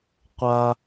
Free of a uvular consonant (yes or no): no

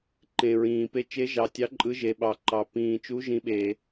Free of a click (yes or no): no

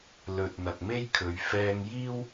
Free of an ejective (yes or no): yes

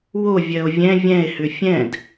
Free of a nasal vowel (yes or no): no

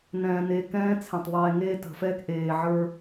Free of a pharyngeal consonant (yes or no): no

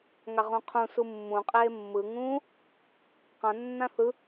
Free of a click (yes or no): yes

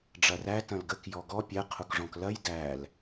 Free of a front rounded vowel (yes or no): yes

